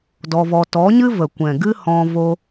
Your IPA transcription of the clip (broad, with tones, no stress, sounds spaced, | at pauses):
d ɔ˧ v ɔ˧ t ɔ˨˦ ɲ ɨ˦ v ə˨ kʷ ɛ̃˨ ɡ ɨ˦ h ɔ̃˧ v o˧